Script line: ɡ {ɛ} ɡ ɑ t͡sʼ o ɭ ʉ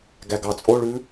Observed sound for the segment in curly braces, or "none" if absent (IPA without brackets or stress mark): æ